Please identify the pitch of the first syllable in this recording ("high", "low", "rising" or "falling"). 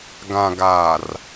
low